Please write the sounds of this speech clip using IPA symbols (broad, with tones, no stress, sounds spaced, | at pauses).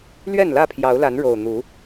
l ɥ ɛ˥˨ n l ä˥˨ pʰ j ɑ˨˦ ʊ̯ l a˨˦ n ɻ o˨˩ ʊ̯ n̪ u˨˦